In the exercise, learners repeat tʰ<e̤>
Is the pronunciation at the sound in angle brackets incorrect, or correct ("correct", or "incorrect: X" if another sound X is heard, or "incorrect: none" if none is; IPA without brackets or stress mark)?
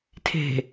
correct